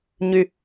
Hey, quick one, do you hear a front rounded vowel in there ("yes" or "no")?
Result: yes